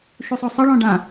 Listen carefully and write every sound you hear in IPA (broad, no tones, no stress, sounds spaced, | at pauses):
ʃ u sˤ o sˤ ɐ ɭ ɔ̃ ɖ ã